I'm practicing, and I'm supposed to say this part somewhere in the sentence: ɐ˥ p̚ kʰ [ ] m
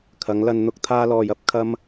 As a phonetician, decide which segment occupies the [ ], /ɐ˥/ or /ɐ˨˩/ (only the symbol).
ɐ˥